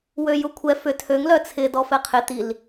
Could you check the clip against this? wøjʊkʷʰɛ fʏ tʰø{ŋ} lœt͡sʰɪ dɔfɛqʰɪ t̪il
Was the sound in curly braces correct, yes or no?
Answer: yes